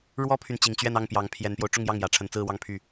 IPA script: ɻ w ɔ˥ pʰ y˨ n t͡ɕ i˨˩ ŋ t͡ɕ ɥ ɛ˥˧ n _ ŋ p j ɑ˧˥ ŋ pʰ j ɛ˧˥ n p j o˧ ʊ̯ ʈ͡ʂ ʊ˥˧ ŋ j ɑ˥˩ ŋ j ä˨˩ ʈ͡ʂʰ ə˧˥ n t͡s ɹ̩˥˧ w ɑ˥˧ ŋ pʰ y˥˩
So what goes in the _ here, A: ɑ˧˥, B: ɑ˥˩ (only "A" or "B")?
B